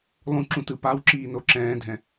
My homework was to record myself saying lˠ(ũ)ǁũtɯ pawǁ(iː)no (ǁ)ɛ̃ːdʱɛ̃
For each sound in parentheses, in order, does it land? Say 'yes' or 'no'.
yes, yes, yes

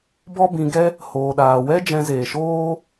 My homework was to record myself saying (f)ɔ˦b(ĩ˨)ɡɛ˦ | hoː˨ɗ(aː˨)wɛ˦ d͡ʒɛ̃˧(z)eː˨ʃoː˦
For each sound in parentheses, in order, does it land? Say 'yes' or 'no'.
no, no, yes, yes

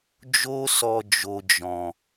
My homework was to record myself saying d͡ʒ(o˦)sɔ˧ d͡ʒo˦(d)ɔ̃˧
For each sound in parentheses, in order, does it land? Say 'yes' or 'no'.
yes, no

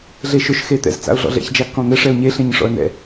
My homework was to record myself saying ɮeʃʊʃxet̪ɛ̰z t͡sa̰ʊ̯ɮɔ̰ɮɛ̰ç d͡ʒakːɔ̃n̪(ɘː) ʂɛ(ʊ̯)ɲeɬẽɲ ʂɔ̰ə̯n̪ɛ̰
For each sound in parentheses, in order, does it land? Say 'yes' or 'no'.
no, yes

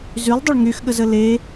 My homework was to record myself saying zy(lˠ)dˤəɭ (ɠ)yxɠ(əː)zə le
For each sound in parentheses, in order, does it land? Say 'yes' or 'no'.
yes, no, no

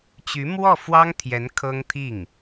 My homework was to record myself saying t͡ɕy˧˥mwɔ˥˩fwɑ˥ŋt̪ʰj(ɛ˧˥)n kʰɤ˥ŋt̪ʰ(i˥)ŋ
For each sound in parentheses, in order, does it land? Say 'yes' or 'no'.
yes, no

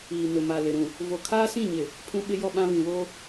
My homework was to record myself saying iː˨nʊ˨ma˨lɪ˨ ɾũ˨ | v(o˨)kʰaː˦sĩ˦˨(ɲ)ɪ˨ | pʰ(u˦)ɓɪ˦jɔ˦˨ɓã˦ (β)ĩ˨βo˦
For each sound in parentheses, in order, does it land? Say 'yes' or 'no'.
yes, yes, no, yes

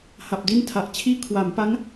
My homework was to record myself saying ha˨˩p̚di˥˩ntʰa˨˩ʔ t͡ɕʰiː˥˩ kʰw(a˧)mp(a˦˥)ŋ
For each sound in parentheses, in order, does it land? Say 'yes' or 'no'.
no, yes

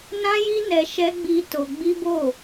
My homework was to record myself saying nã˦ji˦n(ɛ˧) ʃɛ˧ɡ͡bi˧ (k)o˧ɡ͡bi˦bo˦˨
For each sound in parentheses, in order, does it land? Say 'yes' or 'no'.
yes, no

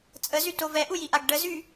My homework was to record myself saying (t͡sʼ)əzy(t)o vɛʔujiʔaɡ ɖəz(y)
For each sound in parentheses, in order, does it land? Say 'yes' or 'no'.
yes, yes, yes

